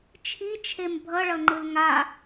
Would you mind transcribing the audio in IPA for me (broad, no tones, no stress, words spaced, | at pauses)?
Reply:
t͡ʃʰit͡ʃʰem bʱʌɭʌŋ͡ǃɯl ŋa